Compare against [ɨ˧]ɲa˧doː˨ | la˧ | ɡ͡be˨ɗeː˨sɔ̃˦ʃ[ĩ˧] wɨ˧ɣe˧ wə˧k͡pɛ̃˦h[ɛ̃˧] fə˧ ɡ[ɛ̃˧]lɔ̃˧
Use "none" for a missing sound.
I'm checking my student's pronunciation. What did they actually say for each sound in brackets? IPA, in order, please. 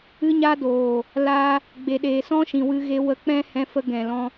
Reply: ɨ˧, ĩ˨, ɛ̃˧, ɛ̃˨

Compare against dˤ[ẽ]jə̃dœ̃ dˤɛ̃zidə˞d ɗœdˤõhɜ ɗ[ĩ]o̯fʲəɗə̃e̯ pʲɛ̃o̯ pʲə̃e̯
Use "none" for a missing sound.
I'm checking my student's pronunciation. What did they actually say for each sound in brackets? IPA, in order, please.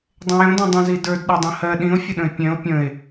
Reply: ẽ, ĩ

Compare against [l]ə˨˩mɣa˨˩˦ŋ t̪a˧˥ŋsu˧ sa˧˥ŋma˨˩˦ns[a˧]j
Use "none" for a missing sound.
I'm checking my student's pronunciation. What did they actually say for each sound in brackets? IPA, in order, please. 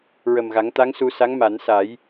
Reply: ɹ, a˨˩˦

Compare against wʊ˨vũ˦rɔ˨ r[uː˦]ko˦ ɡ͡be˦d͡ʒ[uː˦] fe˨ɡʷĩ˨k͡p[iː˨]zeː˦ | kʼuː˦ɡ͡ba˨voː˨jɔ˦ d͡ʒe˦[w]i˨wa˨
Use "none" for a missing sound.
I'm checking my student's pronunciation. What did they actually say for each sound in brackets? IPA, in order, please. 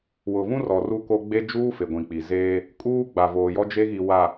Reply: u˦, uː˦, i˨, ɣ

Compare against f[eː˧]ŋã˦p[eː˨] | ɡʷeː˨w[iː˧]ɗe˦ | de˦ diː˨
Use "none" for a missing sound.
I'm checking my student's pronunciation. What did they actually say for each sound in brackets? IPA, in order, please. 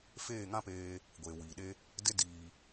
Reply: eː˦˨, eː˧, iː˨

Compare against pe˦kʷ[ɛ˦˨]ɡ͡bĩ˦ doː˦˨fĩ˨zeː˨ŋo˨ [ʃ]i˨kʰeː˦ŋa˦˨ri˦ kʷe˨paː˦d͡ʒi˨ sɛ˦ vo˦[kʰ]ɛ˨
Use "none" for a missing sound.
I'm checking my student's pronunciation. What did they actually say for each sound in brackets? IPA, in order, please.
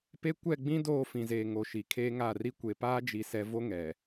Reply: ɛ˦˨, ʃ, ŋ

